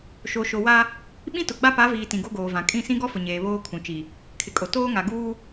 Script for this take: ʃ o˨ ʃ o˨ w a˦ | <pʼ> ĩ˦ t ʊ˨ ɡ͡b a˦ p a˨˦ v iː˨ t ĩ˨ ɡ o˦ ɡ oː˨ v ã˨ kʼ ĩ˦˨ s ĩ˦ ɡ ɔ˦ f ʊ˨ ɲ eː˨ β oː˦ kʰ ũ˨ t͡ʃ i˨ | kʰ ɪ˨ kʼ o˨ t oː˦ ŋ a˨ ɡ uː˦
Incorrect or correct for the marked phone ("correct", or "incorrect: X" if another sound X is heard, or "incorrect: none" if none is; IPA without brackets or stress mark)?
incorrect: ɓ